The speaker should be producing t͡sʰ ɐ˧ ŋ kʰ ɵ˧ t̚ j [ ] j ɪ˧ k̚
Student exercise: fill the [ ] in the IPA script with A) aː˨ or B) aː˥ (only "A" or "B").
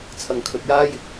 B